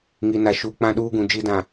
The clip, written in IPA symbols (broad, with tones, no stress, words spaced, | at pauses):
ŋi˨na˨ ʃu˨ k͡pã˦ɗuː˦ɡũ˨ d͡ʒi˦dã˨